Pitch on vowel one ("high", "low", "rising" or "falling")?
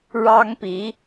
high